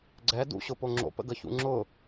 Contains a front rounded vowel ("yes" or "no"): no